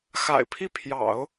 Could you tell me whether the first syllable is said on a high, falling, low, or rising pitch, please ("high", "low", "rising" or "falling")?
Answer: low